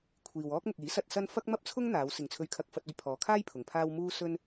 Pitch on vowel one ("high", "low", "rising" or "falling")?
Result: low